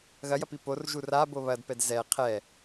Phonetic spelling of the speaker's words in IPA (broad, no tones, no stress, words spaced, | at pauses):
ɣɐjɐpi porʒu rabo βɐdpɛd zɛ qʰɛ